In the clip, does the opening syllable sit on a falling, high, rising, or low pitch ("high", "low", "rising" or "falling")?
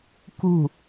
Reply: falling